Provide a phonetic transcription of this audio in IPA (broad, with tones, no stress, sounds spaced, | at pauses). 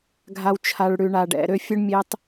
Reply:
ɡʱ a˧ w t͡ʃʰ a˧ ɭ ɽ ʉ˧ ɳ a˧ ɖ ɛ̰˧ ɾ ø˦ fʲ ɵ˦ ɳ mʲ e˦ tˤ